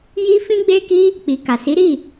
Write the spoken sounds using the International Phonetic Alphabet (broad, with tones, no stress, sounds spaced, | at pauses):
j i˦ f ĩ˦ ɡ͡b e˦ k i˦ | k͡p i˨ k a˨ s i˨˦ ɾ i˦˨